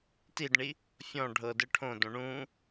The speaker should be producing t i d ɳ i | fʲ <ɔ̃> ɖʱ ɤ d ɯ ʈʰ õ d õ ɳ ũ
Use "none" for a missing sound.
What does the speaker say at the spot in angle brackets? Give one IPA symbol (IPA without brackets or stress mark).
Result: ɔ̃